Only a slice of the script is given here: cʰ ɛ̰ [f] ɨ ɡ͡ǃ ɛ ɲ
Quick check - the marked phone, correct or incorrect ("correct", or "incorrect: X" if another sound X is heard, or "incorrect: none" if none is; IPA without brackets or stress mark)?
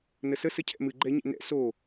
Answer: incorrect: m